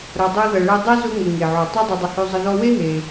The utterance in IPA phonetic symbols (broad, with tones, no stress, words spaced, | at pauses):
ɾɐ˨dˤo˦ðɐ˨ɭɛ˦ dˤe˥zʊ˦ŋə˩ ŋe˩ʕo˩ tˤa˦dˤe˨dˤə˨ hø˦zˤə˦ðɔ˥ we˥ɦe˩